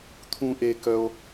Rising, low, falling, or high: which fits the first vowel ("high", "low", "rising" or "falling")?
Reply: high